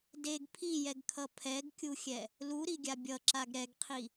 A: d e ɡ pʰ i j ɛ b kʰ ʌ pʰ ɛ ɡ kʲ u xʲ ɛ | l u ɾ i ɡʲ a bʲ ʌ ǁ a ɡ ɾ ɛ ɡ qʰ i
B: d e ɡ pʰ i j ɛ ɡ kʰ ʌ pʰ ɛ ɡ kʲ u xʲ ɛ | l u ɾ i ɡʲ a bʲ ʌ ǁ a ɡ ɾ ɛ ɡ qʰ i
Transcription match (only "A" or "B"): B